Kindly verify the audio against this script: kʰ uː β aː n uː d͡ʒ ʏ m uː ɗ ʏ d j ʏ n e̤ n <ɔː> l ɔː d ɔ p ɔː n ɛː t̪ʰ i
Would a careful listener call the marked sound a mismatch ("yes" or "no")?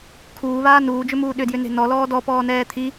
yes